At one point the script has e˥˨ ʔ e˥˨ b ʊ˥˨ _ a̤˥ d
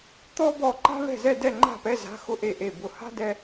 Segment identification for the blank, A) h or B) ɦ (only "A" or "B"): A